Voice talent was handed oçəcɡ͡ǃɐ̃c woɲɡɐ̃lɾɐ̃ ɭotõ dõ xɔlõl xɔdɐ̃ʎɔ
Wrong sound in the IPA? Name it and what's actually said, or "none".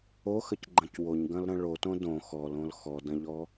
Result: ç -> x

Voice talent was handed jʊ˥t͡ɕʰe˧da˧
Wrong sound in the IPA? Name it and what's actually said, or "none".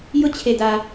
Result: none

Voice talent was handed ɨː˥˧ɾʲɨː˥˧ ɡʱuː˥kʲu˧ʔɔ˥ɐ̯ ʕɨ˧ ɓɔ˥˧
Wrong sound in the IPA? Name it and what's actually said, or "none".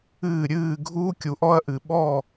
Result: ʕ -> ʔ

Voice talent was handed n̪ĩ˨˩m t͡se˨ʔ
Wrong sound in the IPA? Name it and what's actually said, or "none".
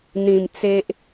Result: none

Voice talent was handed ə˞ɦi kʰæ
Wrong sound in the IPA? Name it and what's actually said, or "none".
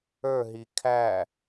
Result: none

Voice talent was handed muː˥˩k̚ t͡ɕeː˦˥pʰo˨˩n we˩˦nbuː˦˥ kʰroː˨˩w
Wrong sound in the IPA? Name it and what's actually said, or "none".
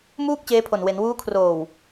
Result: b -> w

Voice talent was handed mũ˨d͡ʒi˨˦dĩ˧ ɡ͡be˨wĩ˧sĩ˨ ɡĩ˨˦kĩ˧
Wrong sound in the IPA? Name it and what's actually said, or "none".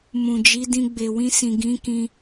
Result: none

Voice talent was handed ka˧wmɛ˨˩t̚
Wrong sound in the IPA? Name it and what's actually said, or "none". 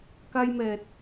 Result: w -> j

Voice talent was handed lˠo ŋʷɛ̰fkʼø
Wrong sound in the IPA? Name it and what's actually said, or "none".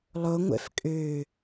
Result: none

